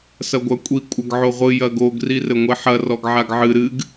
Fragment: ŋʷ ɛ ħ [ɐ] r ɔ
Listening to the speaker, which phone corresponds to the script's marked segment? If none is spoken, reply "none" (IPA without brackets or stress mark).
ɐ